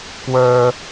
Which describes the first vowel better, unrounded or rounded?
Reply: unrounded